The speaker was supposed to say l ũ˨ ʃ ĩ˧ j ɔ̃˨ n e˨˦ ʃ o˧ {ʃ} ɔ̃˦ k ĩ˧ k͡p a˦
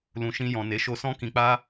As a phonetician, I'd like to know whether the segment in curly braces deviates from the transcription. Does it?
yes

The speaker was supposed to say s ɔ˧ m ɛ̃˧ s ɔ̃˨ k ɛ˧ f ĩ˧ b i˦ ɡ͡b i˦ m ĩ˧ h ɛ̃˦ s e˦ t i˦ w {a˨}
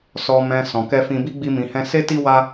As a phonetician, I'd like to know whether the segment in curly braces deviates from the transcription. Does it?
yes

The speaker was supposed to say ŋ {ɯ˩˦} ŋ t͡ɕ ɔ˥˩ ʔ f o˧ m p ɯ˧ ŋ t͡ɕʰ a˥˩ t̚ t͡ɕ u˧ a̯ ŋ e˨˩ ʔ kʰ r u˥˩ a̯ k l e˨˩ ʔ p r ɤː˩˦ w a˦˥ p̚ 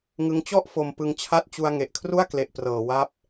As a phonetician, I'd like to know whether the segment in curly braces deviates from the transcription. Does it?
yes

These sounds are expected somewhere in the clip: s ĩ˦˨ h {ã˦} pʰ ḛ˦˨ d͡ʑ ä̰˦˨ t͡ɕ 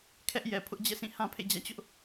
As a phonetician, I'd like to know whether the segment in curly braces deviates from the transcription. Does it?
no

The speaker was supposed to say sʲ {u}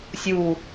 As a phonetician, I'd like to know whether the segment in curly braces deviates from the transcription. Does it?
no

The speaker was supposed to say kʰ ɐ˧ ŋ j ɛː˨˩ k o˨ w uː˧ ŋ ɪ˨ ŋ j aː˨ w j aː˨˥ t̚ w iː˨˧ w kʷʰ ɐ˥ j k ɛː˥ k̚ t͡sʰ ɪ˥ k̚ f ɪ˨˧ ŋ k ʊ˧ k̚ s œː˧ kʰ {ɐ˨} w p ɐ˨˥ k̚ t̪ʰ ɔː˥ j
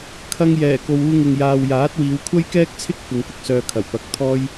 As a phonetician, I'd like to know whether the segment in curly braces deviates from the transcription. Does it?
yes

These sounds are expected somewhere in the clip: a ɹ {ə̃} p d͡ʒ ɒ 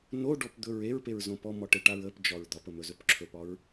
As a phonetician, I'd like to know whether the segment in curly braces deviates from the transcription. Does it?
yes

